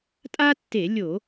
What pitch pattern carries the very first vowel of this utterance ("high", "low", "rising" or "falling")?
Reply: high